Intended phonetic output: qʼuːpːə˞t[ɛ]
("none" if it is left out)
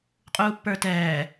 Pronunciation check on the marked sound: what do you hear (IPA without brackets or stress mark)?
ɛː